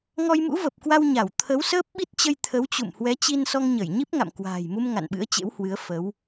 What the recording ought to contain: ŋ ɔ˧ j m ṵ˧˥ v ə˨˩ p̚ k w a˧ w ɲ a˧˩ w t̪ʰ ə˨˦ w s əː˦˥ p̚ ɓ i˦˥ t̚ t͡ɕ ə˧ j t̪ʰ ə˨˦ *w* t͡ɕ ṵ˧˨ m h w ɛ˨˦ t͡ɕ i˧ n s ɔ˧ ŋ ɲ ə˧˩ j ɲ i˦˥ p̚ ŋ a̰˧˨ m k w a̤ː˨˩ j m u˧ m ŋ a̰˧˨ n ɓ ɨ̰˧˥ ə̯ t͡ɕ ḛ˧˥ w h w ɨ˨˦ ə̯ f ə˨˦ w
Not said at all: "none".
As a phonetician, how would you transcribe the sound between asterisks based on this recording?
w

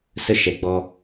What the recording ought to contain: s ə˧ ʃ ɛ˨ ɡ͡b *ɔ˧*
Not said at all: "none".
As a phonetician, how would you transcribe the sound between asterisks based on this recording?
ɔ˧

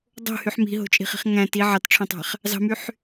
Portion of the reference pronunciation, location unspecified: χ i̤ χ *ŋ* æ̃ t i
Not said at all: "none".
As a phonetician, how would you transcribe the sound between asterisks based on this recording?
ŋ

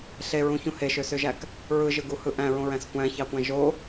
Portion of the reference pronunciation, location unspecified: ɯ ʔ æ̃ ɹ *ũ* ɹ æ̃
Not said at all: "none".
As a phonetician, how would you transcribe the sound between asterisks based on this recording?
õ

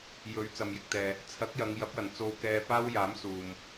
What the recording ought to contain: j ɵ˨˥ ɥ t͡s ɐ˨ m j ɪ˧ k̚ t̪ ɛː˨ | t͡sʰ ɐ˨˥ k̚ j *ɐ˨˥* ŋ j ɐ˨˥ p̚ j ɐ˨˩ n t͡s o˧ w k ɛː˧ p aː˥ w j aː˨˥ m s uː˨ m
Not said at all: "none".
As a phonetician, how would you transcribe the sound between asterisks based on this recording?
ɐ˨˧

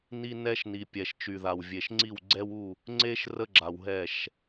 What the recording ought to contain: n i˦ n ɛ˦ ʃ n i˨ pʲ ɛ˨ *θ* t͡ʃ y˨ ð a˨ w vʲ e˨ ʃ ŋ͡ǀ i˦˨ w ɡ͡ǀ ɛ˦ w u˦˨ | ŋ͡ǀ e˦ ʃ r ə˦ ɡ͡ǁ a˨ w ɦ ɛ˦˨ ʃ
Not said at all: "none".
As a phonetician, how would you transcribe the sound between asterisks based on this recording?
ʃ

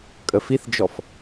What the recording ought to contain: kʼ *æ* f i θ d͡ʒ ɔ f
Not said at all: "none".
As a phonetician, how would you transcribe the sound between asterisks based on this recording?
ə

